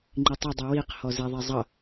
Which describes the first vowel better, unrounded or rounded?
unrounded